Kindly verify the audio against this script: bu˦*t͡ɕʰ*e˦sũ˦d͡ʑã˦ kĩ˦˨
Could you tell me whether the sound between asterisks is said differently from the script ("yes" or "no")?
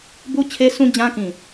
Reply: no